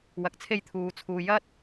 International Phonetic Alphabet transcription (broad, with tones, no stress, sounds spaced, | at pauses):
w ɐ˧ k̚ t͡sʰ e˥ j t̪ʰ uː˨˧ t͡sʰ uː˨ j ɐ˥ t̚